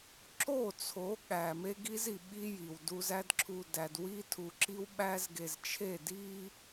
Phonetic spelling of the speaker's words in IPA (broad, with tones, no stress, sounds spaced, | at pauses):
ǁ o˦˨ t͡sʰ o˨˦ ɠ æ˨ m e˦ ɡ i˦ z i˨ ɓ i˦ j i˨ w d u˦ z æ˦ d ǁʰ u˨ d æ˨ d w i˦ tʰ u˨ ǁ i˦ w ɓ æ˦ z ɡ e˨ z t͡ʃʰ e˦˨ d i˦